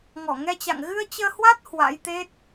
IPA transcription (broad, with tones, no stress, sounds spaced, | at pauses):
ŋ ɔ˧˩ ŋ ɛ˧ t͡ɕ a̰˧˨ ŋ ɣ ɨ˧ ə̯ t͡ɕ əː˧ h w a˦˥ t̚ h w a̰˧˥ j t̪ e˦˥ t̚